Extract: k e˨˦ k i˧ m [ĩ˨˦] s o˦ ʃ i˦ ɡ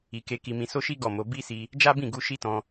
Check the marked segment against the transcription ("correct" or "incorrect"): incorrect